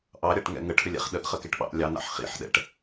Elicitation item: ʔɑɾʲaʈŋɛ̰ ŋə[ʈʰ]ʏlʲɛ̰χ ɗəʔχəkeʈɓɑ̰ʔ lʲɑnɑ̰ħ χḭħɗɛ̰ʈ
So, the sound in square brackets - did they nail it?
yes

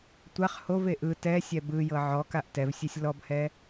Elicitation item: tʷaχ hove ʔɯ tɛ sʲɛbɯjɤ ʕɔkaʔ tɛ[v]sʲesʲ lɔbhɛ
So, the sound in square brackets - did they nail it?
yes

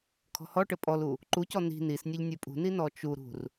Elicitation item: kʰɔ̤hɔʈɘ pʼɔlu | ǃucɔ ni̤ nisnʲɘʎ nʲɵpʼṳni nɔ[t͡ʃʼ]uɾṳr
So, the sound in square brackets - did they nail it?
no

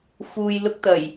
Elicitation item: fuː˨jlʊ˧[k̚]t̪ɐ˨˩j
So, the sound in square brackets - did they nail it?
yes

